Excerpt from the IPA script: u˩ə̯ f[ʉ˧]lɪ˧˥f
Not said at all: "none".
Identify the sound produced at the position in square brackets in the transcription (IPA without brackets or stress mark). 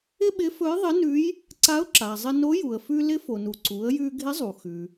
ʉ˧